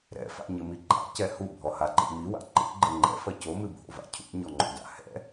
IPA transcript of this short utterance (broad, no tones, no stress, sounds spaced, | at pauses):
ɾ ɛ̰ f a̰ ɲ ɘ m i ɡ͡ǃ a̰ c ɛ h u bʱ ɔ h a ǃ ḭ m i w a̰ ǃ ḭ ɡ͡ǃ ɘ ŋ͡ǃ ɛ̰ f ɐ c o m ɨ bʱ o̰ v a̰ cʰ ṵ ɲ ɔ ŋ͡ǃ o̰ d a̰ h ɛ̰